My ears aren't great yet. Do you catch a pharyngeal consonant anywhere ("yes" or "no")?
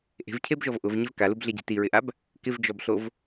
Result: no